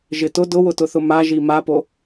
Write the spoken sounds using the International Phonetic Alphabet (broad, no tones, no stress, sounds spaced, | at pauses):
ʒ ɪ t ʊ d ʊ w ʊ t ʊ θ ʊ m a ʒ i m a p o